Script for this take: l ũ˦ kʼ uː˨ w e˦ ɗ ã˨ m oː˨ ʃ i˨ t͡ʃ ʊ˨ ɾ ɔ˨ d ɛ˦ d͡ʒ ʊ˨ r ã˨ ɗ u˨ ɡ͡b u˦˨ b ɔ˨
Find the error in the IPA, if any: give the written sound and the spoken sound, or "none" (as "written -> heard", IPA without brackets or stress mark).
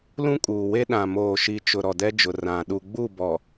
none